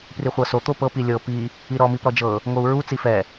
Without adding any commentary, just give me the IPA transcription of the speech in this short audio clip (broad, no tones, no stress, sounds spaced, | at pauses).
p r i χʷ ɤ s o t̪ o p ɤ p i lʲ ɤ p i | i ɾ ɔ m i p ɾ ɔ d͡ʒ ɤ | ŋ o u̯ ɹ u t͡s i f ɛ